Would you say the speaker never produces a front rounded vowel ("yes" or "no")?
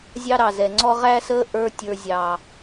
yes